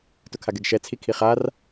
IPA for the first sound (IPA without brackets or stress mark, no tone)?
t